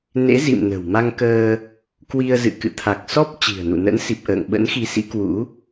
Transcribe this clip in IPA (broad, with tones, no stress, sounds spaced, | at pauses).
n ḛ˧˥ z ḭ˧˨ m n ə̤˨˩ w m a˧ ŋ k əː˧ | k w i˧ ə̯ z ɨ̰˧˨ k ɨ̰˧˨ t̪ʰ a˨˩ k̚ s ɔ˦˥ p̚ t͡ɕ i̤˨˩ ə̯ n ṵ˧˨ n ə̰˧˥ n s i˨˩ p̚ ʔ ə̰ː˧˨ ŋ ɓ ə̰˧˥ n x i˨˦ s ḭ˧˥ k w ṵ˧˥